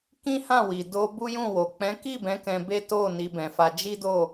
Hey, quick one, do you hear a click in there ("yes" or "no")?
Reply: no